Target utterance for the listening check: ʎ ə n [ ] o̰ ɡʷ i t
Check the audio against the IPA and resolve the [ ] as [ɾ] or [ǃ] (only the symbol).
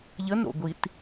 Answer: ɾ